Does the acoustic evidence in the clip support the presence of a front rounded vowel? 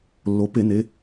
no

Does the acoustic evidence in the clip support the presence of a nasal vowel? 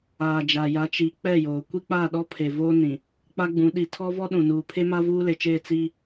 yes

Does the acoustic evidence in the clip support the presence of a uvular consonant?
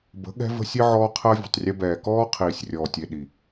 yes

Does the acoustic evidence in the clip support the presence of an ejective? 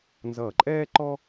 yes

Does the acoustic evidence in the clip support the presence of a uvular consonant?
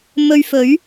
no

